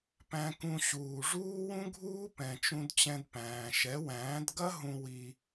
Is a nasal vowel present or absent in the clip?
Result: present